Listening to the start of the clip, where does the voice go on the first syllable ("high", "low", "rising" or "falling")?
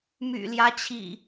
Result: low